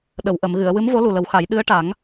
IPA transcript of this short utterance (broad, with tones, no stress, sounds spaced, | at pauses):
ɗ ə˨˩˨ w ʔ ə˨˩˨ m ɣ ɨ˨˩˨ ə̯ w ɨ˧˥ m v o˧˥ l u˨˩ l ə˨˩˦ w x a˨˩˦ j ɗ ɨ˧˥ ə̯ ʈ a˨˩˦ ŋ